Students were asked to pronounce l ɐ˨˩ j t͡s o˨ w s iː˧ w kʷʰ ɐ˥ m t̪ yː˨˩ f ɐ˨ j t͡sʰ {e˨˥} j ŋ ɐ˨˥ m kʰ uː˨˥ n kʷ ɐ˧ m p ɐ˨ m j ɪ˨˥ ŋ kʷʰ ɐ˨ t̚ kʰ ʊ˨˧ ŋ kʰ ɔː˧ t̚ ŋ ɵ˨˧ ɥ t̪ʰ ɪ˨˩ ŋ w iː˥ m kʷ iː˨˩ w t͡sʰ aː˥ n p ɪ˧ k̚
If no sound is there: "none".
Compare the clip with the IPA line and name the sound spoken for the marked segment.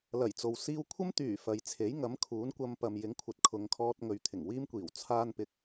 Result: e˨˥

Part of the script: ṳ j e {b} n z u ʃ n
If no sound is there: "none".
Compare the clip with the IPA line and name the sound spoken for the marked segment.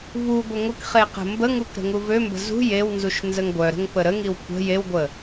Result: w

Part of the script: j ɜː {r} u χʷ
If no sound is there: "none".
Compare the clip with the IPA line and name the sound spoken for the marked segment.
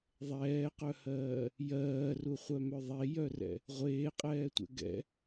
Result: r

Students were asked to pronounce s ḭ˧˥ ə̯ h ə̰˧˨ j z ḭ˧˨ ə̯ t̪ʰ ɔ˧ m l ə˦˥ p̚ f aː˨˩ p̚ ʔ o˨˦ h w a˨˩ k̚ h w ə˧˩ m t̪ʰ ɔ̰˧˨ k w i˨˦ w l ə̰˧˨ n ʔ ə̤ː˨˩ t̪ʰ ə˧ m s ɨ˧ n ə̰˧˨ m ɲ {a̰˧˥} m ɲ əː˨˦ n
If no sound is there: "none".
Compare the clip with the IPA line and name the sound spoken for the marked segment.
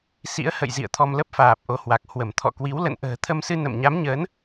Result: a˨˦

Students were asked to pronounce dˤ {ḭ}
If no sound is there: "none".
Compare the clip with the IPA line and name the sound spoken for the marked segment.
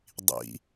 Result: ḭ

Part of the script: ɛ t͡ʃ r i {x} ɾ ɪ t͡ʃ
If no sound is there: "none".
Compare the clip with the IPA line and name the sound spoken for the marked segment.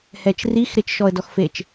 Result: x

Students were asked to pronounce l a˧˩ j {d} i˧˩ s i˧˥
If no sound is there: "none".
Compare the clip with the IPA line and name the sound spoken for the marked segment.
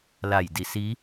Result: d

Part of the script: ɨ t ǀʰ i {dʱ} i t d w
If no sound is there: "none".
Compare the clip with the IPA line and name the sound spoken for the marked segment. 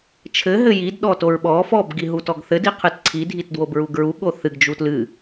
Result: dʱ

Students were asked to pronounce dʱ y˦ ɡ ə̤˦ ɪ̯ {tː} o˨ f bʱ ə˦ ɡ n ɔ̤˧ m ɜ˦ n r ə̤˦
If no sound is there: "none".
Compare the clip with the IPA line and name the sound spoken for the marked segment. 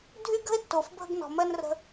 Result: tː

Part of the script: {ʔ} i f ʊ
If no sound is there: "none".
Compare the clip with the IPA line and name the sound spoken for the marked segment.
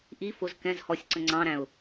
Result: ʔ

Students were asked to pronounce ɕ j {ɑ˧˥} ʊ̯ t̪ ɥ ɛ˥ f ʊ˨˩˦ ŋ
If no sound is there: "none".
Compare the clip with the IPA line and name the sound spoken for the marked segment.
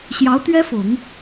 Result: ɑ˧˥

